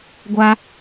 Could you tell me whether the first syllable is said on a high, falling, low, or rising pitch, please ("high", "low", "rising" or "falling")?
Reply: high